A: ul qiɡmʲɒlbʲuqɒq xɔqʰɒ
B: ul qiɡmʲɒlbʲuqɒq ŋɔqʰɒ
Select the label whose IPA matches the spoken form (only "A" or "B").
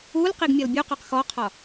A